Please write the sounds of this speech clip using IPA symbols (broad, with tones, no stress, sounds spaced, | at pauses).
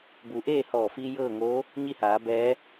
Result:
b u˩˧ ʔ eː˥˨ h ɔː˧˩ f iː˧ j ɤː˥˨ ŋ oː˧˥ | ɲ i˥˨ h aː˩˧ b ɛː˧˥